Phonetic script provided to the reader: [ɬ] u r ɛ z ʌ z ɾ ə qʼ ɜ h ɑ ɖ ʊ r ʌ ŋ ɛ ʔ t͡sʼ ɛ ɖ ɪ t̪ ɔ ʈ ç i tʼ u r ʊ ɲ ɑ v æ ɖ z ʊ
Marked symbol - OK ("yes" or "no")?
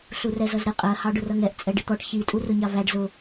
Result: yes